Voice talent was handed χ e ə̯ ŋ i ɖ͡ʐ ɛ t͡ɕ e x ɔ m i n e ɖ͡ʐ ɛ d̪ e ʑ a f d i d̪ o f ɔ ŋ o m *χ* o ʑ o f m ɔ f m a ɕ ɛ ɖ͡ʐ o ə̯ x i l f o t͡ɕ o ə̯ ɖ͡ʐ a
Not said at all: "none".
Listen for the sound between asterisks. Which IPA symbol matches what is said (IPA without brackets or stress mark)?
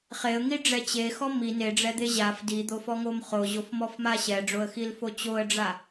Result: χ